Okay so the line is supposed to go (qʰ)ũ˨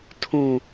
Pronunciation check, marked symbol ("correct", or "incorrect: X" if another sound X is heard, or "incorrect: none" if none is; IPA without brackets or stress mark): incorrect: tʰ